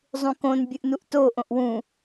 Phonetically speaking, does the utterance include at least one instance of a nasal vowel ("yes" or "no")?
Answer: yes